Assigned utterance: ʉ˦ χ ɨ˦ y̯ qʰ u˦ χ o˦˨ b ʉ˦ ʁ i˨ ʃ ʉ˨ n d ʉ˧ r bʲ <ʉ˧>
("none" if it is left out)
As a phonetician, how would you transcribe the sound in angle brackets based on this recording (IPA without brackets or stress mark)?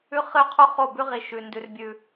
ʉ˧